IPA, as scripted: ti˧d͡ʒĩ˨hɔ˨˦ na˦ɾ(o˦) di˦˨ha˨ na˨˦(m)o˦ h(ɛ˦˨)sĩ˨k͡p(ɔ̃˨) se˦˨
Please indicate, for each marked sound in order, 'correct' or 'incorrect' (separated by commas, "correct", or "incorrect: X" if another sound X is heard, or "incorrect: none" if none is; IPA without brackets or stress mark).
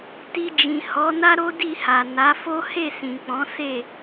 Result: correct, incorrect: f, incorrect: e˦˨, incorrect: ɔ̃˨˦